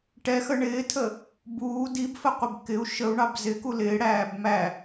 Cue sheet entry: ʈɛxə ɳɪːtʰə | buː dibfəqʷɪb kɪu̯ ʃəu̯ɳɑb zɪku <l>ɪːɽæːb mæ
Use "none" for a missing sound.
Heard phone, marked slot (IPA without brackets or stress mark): l